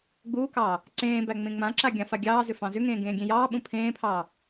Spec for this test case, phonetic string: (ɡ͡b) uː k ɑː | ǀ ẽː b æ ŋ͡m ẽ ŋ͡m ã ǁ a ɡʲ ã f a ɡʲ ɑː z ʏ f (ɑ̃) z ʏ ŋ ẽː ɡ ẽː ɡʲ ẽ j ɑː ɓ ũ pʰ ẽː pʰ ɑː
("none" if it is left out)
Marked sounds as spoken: ɡ͡b, ɑ̃

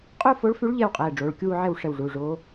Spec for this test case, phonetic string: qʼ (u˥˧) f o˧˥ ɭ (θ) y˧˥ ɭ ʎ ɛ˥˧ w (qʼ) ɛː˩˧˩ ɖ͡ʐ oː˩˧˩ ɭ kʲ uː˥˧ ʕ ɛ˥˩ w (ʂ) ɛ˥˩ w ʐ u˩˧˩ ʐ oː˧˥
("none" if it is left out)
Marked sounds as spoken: u˥˧, f, qʼ, ʂ

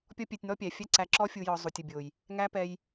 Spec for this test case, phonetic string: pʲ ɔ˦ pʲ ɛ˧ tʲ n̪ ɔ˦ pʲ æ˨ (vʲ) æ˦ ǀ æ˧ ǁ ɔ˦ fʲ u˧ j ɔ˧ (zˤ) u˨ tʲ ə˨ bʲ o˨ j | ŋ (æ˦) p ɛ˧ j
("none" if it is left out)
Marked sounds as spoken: fʲ, zˤ, æ˦

